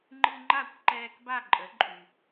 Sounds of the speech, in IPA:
ŋ͡ǃ ɨ˧ ŋ͡ǃ a˥˩ kʷ ǃ ɛː˧ k b a˥˩ ǃʼ ə˩˥ ǃʼ y˩

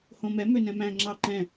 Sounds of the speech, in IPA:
h õ m ɛ m ø n ɛ̃ m æ̃ ŋ͡ǁ ɑ ǃ ɛ̃

